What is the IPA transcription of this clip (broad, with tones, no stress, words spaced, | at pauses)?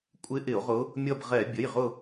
kʷʼɪ˧˥ ʔɪ˧˩˧o̯ʁʊ˧˥ | mʲʌ˦˨bʁɛ˧˩˧ bʲə˩˧˩jʁʊ˦˨